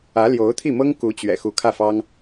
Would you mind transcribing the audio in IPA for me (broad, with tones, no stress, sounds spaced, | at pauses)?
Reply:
ä˧˥ l j o˧˥ ʊ̯ t̪ʰ i˥˩ m ɤ˥ ŋ k u˧˥ t͡ɕ ɥ ɛ̰˨˩ x u˧˥ kʰ ä˥˩ f ɑ˥ ŋ